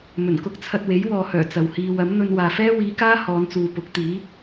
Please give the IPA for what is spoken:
m ɵ˨˩ n k ʊ˥ k̚ t͡sʰ ɐ˧ t̚ w e˨˥ j w ɔː˨ h œː˨˩ t͡s ɐ˨ w h iː˧ w ɐ˨˥ m n̪ ɵ˧ n w aː˨ f ɛː˥ w iː˨˧ k aː˥ h ɔː˨˧ n t͡s uː˨ p ʊ˨˥ k̚ t̪ iː˨˥

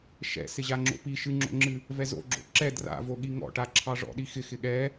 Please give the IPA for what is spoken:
ʃ ɛ̰ s ɪ ʑ a ŋ͡ǁ o̰ p i ʃ ɨ ŋ͡ǁ o̰ ŋ͡ǁ ɨ | v ɛ z o̰ ɡ͡ǁ o̰ ǁ ɛ d r a̰ v o ɠ i ŋ ɔ̰ ʈ a ǁʰ ɑ ʐ ɔ̰ ɗ i x ɪ x ɪ ɠ ɛ

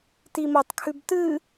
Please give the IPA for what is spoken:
t i m o tˤ kʰ ʉ b t ɨ

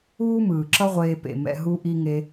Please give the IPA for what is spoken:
uː˦ m ɯː˨ ǁ ʌ˦ ʁʷ eː˧ p ḛ˨ m ɛ̰˧ ɦ u˦ ʔ i˦ ŋ e˦

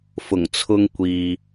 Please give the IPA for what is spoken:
f ʊ˨˩ ŋ t͡sʰ ʊ˧ ŋ kʷ iː˨

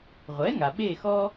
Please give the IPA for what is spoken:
ʁʷ ɛ˩˥ ŋ a˩ ɓ e˦˨ x ɔ˦

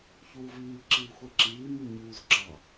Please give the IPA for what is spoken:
ç uː v iː ǁ iː xʷ ɛ ǁ iː m i ɲ uː z ǁ ɑ

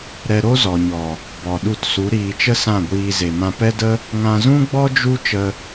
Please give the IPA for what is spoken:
ɾ ɛ˧ ɾ o˦ z ɔ˨ ɲ ɔ˨ | b ɔ˨ ɗ u˧ t s u˨˦ ɾ iː˧ t͡ʃ ə˦ s ã˦˨ ɡʷ iː˧ z e˨ m ã˧ p ɛ˦ d ə˦ | ŋ ã˧ z ũ˦ ɡ͡b ɔ˦ d͡ʒ u˦ t͡ʃ ə˧

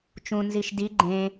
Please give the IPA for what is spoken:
t͡ʃ ũ n z i ʃ d i ɡ͡ǃ ẽ

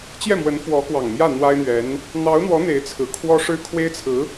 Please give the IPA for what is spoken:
t͡ɕ j ɛ˥˩ m w ə˧˥ n f w ɔ˧˥ k w ɑ˨˩ ŋ m j ä˥˩ n̪ w a˥ ɪ̯ n̪ ɥ ɛ˧˥ n | n̪ ɑ˧˥ ʊ̯ n̪ w ɔ˧˥ n̪ e˧˥ ɪ̯ t͡sʰ ɹ̩˨˩ kʰ w ɔ˥ ʂ ɻ̩˥ kʰ w e˥ ɪ̯ t͡sʰ ɹ̩˧˥

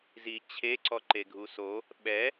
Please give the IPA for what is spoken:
z i t͡ɕʰ e ǀ ɔ ǃ e ɡʱ u s o | ɓ ɛ

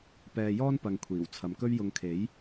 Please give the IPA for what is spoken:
p ɛː˧ j ɔː˥ n p ɐ˨ ŋ kʷʰ iː˨˩ w t͡sʰ ɐ˨ m k ɵ˥ ɥ j ʊ˧ ŋ kʰ e˨˥ j

